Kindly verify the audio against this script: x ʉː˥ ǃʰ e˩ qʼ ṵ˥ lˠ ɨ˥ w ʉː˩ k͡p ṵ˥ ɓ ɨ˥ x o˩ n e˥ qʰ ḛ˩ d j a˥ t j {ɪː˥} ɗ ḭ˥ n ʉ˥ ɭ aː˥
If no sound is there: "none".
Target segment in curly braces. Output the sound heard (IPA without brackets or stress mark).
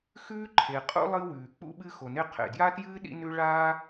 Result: ɨː˥